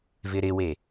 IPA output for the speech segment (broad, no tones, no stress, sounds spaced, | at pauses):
v ɪ ɾ ɪ w e